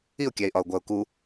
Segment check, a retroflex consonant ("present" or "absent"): absent